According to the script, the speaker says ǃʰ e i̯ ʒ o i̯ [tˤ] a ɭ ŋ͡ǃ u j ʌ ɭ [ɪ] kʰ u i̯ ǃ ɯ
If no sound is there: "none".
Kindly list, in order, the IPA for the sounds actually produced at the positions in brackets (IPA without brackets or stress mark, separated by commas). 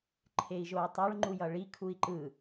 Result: tˤ, i